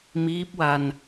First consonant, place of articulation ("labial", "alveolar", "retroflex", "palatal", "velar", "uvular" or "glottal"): labial